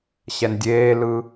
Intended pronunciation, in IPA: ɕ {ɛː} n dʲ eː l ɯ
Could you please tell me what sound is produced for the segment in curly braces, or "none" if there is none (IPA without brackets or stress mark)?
ɛ